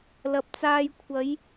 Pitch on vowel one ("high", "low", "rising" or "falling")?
low